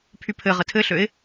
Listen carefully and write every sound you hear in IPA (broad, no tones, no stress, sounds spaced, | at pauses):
pʰ y pʰ ɘ ʁ ə tʰ ɘ ɬ ø ɪ̯